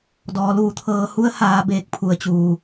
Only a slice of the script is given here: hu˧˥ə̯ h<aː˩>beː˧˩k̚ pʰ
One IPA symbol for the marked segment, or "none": aː˩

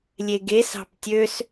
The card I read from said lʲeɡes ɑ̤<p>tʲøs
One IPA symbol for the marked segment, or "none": p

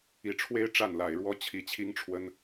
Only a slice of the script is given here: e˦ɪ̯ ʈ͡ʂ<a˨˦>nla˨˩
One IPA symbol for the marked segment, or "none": a˥˨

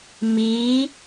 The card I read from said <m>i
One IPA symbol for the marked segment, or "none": m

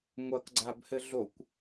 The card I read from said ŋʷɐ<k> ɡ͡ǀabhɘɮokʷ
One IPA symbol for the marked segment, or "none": k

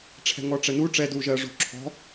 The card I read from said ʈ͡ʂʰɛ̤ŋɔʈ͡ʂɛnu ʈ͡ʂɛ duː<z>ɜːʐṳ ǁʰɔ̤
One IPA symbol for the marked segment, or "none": ʒ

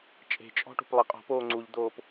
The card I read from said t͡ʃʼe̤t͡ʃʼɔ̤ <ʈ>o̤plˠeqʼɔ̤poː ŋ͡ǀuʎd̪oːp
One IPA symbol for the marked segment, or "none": ʈ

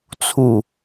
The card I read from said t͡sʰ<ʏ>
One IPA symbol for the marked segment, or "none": u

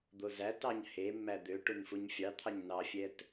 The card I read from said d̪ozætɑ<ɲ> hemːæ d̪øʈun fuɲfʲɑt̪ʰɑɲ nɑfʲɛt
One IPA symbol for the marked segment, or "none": ɲ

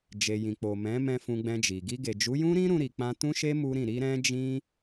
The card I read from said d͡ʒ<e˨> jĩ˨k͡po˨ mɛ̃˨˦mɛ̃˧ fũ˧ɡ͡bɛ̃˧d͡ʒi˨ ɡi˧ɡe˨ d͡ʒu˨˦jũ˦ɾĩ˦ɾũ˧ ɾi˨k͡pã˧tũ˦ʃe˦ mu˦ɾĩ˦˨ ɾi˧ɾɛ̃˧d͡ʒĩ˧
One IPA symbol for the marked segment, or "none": e˨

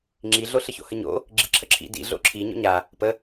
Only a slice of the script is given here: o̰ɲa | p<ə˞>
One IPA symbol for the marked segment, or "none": ə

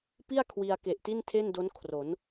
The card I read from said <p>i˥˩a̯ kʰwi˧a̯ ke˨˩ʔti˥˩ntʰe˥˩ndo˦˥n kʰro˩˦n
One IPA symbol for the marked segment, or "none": p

